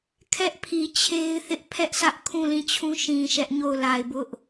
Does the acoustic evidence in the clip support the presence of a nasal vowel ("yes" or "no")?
yes